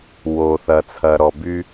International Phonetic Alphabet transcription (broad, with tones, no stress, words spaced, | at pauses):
wo˨θɐ˨ t͡sʰɐ˨ɾɔ˨by˦